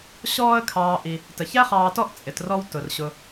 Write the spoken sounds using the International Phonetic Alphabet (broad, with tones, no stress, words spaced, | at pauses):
ɕɔː˦ə̯ kʰɑː˨ʔi˩ | tə˩çæ˥χɑː˨tɔ˦ʔ t͡sʼɪ˩trɔ˦w tʊ˩rɕʊ˨